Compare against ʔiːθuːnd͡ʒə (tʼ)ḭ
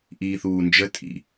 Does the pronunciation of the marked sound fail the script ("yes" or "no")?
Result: no